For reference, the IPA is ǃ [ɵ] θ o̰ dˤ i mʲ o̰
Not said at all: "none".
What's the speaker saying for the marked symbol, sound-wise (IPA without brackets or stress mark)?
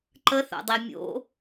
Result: ə